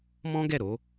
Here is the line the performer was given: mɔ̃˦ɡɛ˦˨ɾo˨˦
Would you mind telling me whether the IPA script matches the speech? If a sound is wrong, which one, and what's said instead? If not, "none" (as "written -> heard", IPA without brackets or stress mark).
none